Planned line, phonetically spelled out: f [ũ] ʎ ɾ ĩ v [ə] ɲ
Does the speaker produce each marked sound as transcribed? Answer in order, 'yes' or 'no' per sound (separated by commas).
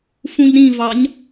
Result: yes, no